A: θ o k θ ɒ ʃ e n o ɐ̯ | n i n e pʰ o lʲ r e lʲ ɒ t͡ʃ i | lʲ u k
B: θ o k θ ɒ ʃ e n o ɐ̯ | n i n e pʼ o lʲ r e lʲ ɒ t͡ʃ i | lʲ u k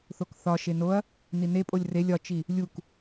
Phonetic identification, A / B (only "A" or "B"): B